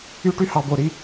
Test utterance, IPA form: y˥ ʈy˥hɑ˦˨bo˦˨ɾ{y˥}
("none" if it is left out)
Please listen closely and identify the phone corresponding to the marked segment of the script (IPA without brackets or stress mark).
i˥